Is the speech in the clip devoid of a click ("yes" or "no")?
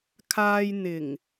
yes